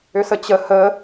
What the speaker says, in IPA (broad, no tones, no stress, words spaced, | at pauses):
ʏsət͡ɕə hə